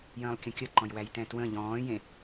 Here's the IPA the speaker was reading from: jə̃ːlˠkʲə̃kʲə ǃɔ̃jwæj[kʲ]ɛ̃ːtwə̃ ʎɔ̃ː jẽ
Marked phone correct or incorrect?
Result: incorrect: t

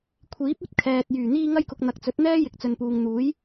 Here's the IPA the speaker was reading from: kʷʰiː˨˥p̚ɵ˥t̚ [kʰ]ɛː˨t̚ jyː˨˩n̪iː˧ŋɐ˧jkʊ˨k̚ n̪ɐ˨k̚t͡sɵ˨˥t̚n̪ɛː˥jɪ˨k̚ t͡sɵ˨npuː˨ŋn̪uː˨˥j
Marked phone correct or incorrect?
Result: correct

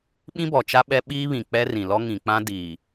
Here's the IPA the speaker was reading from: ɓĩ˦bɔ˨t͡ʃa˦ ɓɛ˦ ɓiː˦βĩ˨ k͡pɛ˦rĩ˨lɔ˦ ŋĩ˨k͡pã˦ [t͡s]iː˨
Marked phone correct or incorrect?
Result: incorrect: d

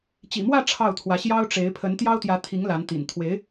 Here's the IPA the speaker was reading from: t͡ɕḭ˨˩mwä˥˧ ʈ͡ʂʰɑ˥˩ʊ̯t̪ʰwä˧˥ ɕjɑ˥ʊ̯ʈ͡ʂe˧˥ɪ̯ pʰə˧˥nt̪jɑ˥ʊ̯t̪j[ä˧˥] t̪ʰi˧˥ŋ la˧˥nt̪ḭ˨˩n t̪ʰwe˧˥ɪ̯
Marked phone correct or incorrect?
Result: correct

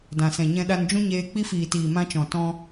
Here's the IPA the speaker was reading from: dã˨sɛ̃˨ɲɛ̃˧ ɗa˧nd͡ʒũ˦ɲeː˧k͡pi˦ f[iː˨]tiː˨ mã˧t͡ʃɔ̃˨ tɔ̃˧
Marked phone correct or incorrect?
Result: correct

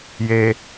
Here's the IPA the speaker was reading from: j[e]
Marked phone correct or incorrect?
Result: correct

